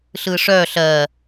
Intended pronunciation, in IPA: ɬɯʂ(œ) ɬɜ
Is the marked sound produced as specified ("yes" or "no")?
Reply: yes